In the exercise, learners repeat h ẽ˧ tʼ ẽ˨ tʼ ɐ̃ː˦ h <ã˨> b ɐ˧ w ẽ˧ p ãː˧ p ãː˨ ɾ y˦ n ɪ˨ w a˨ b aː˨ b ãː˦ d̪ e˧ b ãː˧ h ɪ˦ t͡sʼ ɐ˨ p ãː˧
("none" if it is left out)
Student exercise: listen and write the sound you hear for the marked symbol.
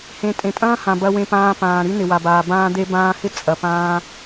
ã˨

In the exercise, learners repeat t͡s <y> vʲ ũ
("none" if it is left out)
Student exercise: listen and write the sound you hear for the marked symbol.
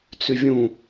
y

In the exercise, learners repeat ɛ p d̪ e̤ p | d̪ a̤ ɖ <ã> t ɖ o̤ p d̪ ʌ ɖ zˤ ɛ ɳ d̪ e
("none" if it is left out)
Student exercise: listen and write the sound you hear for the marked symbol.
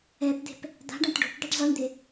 ã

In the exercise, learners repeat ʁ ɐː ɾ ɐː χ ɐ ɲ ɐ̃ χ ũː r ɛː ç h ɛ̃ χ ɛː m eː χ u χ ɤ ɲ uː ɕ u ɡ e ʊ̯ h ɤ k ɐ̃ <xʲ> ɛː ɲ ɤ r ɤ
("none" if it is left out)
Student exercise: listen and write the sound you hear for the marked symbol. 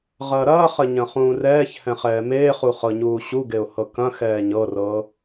x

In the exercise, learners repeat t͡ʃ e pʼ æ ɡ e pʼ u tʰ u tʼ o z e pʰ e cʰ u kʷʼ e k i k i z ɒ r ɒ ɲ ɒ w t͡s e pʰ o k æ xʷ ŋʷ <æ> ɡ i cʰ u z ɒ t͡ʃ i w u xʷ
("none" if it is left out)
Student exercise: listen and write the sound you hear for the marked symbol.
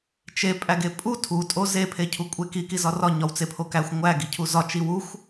æ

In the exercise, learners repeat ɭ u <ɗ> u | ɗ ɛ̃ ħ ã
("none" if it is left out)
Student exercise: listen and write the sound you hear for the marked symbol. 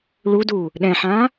d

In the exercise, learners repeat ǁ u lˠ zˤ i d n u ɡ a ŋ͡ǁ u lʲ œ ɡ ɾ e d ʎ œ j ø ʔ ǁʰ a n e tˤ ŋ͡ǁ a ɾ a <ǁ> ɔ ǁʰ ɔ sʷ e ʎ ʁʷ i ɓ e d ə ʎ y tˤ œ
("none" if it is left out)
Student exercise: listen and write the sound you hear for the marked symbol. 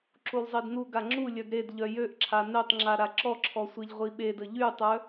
ǁ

